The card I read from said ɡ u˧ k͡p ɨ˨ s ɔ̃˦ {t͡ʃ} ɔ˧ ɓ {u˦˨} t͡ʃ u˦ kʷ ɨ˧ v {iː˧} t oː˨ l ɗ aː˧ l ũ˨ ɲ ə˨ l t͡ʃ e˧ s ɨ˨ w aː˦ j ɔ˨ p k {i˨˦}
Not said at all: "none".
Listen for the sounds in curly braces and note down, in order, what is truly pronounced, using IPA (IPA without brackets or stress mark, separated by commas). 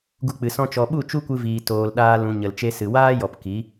t͡ʃ, u˦˨, iː˨, i˨˦